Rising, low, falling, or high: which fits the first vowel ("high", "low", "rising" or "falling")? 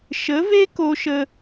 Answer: rising